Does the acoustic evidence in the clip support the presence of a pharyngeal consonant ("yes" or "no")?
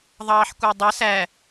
yes